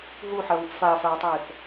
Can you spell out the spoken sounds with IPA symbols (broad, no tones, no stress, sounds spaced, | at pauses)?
ɦ uː ħ ɜ β u p f aː f aː tˤ eː θ